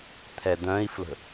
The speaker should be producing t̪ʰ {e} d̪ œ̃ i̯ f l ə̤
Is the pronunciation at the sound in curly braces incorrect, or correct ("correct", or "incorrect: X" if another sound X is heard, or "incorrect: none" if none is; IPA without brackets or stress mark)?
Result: incorrect: ɛ